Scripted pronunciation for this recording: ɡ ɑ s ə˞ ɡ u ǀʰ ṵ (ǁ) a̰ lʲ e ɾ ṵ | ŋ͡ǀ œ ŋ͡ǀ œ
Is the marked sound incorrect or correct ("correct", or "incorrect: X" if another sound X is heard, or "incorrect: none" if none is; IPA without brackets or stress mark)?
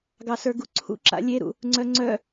correct